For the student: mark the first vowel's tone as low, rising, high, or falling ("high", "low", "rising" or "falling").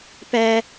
high